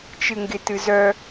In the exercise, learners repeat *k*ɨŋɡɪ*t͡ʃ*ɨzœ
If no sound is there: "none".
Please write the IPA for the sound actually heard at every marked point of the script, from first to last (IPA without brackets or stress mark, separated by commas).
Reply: t͡ʃ, t